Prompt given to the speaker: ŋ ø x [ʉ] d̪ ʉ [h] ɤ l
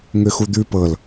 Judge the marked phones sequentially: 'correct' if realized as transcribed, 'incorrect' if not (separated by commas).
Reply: incorrect, incorrect